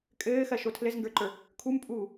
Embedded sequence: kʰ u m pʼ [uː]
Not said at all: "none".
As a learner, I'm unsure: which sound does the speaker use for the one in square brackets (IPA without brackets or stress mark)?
uː